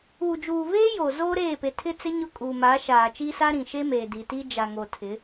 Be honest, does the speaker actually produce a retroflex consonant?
no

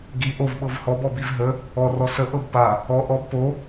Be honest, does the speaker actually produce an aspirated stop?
no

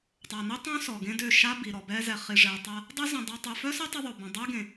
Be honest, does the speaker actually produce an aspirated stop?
no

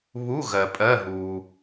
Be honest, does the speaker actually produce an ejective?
yes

